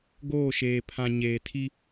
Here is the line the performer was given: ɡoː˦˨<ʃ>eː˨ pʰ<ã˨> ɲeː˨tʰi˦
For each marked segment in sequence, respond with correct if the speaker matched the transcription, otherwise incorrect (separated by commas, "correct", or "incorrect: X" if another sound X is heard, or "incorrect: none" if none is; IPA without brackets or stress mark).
correct, correct